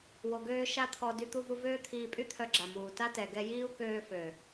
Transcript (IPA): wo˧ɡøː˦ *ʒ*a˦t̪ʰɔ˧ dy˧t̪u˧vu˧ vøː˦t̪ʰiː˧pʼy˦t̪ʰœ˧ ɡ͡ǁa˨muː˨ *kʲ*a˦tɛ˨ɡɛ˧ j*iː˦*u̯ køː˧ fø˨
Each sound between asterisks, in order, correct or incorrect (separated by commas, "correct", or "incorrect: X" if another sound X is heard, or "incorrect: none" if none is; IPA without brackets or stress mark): incorrect: ʃ, incorrect: t, correct